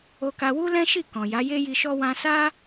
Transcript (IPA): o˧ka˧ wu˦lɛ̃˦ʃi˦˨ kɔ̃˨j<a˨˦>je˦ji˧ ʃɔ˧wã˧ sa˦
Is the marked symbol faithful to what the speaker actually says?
yes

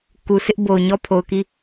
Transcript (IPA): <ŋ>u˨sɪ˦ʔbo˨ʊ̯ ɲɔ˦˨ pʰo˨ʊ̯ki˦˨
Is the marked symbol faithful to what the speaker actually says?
no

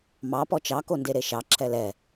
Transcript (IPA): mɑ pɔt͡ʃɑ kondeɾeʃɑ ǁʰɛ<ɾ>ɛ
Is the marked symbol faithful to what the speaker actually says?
no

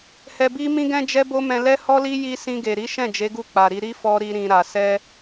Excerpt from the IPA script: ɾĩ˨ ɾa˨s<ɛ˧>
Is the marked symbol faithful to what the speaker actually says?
yes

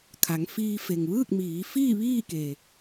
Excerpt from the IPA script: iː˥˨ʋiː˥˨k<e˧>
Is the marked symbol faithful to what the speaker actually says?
no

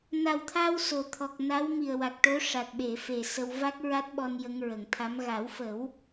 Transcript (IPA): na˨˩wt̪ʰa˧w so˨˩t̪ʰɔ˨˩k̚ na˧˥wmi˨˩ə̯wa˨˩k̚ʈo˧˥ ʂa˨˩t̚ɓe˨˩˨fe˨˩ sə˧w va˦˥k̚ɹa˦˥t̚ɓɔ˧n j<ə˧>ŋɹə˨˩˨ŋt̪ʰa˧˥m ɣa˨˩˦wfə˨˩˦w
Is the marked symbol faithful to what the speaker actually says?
yes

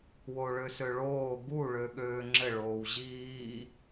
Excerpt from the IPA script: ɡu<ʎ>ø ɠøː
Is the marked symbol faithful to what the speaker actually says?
no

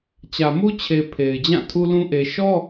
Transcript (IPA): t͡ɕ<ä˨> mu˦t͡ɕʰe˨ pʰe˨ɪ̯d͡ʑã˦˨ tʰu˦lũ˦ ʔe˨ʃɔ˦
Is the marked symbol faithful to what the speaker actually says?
yes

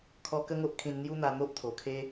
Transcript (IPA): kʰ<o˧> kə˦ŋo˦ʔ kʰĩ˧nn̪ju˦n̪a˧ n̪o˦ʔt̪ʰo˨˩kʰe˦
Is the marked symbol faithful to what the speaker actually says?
no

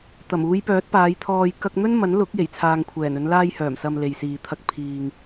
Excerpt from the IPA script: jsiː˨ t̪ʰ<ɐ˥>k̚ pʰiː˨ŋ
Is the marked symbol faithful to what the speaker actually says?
no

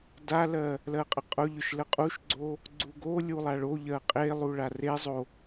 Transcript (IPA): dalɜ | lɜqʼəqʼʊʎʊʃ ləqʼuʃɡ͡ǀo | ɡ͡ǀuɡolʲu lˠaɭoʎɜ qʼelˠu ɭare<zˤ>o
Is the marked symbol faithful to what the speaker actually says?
yes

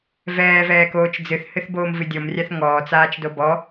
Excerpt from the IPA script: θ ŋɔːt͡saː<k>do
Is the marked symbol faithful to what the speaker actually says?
no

